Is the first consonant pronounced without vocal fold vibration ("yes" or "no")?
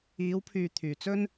no